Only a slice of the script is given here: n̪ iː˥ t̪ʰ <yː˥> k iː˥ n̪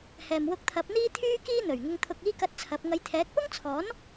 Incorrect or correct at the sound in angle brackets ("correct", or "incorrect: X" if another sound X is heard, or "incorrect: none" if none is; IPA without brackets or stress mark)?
correct